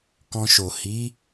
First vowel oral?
no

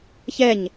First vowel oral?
yes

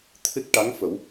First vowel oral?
yes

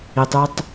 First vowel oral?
yes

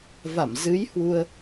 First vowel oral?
yes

